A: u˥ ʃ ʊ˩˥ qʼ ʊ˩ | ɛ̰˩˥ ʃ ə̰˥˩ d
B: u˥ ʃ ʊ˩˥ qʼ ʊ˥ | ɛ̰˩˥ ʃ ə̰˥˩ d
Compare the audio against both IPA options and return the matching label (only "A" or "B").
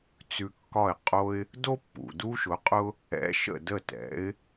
B